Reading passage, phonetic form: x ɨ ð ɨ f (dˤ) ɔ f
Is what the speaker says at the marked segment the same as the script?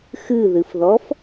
no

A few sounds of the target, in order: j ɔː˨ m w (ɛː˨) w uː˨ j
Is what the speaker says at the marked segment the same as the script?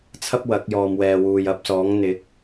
yes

